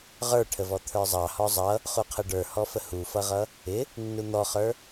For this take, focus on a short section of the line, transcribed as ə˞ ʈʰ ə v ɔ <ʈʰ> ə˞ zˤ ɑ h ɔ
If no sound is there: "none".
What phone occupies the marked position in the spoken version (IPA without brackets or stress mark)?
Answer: t̪ʰ